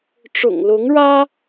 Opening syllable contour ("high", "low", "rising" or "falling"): low